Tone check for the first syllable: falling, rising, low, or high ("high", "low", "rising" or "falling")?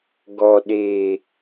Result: low